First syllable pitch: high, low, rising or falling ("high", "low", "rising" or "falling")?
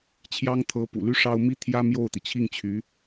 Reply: high